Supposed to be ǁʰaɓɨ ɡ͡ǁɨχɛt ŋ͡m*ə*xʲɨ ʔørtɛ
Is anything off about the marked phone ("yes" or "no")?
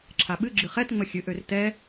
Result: no